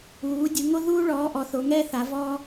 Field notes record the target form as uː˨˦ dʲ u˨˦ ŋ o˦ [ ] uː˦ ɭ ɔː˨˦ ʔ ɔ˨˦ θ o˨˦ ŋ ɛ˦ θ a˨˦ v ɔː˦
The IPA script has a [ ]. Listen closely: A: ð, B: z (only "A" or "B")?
A